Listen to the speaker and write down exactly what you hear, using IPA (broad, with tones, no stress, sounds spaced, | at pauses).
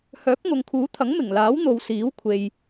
h œː˨˥ p̚ ŋ ʊ˨ ŋ kʰ uː˨˥ t̪ʰ ɐ˨˥ ŋ m ɪ˨˩ ŋ l aː˨˥ w n̪ o˨ w s iː˨˥ w kʷʰ e˨ j